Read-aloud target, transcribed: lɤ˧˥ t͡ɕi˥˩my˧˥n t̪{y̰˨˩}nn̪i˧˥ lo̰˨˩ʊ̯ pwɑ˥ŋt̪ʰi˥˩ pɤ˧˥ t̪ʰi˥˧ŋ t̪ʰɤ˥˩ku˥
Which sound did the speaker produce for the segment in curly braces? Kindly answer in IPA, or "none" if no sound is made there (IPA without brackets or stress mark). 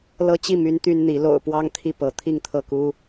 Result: y˥